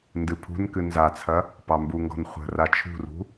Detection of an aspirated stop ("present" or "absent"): present